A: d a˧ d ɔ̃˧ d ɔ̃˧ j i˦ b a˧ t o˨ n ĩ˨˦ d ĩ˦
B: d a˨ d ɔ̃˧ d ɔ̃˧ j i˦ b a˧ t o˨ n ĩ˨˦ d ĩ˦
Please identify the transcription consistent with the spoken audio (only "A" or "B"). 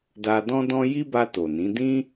A